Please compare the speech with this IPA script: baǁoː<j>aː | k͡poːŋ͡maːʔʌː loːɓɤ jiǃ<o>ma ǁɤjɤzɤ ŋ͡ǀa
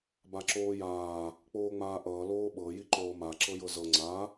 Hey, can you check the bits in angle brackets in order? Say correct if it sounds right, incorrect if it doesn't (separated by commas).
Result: correct, incorrect